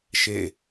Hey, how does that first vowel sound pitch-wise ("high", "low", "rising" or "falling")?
falling